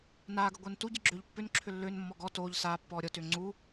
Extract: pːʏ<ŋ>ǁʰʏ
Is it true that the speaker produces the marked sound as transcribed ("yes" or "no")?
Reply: no